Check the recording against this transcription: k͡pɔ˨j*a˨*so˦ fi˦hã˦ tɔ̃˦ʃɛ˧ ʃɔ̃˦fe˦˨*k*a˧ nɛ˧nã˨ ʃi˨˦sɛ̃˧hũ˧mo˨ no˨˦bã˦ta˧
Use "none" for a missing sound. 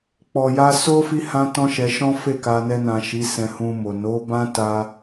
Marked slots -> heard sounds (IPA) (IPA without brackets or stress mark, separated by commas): a˧, k